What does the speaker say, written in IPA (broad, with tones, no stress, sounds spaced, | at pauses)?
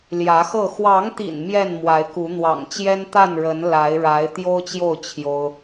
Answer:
l j ä˨˦ x ɤ˥˨ x w ɑ˨˦ ŋ t̪ ḭ˨˩ n m j ɛ˥˨ n m w a˨˦ ɪ̯ k u˨˦ n̪ w ɑ̰˨˩ ŋ t͡ɕ j ɛ˦ n t̪ a˥˨ n ɻ ə˨˦ n l a˨˦ ɪ̯ ɻ a˨˦ ɪ̯ t̪ j o˦ ʊ̯ t͡ɕ j o˥˨ ʊ̯ t͡ɕʰ j o˦ ʊ̯